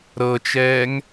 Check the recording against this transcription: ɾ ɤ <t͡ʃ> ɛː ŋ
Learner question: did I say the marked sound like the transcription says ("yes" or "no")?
yes